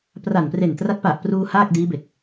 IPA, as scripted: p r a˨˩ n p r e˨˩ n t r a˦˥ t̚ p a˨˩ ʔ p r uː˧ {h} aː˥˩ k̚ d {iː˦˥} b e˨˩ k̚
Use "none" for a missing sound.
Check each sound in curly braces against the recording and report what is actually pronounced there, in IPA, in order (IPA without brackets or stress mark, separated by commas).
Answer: h, iː˦˥